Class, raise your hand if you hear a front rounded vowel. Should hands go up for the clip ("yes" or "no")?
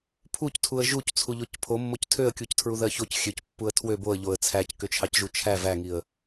yes